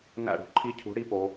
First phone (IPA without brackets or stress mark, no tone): n